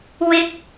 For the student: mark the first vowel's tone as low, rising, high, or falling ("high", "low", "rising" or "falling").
rising